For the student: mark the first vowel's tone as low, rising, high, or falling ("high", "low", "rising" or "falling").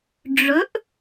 rising